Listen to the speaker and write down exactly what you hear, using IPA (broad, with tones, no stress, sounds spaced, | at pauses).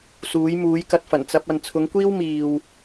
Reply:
s uː˨˥ j m uː˨˥ j k ɐ˧ t̚ f ɐ˨˩ n t͡s ɐ˧ p̚ ɐ˨ n t͡sʰ ʊ˨˥ ŋ kʷ iː˥ w m iː˨ w